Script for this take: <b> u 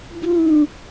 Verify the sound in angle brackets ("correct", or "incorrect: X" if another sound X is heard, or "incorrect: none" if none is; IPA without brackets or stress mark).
correct